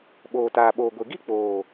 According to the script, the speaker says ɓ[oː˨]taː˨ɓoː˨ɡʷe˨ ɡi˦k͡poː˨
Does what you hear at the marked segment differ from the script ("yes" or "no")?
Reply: no